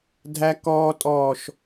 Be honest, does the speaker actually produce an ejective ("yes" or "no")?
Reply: yes